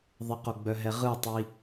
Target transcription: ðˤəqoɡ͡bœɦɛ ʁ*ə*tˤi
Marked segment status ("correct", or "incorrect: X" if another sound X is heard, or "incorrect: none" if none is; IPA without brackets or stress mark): incorrect: ɯ